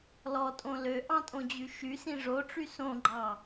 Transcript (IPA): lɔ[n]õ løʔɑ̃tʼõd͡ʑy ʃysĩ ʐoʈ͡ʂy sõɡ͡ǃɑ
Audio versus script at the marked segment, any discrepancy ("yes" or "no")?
yes